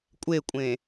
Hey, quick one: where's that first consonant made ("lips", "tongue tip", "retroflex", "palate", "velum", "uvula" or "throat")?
velum